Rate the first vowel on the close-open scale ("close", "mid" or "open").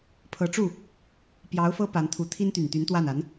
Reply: mid